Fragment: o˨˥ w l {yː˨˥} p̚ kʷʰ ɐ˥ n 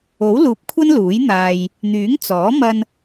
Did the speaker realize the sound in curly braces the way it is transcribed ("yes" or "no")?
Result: no